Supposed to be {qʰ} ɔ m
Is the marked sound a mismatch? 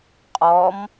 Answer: yes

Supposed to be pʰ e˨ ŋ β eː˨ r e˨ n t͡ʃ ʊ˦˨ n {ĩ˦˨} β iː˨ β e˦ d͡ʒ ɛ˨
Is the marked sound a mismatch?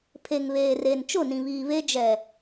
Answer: yes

